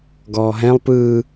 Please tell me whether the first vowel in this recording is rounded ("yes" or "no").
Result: yes